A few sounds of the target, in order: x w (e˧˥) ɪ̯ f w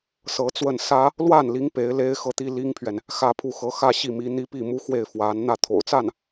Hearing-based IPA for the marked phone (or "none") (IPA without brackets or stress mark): e˥˩